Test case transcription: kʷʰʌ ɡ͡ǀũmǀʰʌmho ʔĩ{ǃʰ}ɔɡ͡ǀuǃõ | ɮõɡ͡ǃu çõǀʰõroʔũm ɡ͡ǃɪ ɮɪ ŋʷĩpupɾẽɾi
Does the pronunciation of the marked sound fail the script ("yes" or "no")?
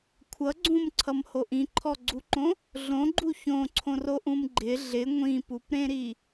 no